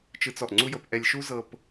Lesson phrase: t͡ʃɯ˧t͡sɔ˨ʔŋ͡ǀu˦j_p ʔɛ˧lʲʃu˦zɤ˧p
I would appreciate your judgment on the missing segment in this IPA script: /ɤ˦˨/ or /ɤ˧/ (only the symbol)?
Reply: ɤ˧